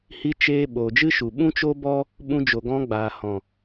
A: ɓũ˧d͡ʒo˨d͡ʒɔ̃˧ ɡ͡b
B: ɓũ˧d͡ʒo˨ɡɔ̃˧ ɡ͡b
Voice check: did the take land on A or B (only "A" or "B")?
B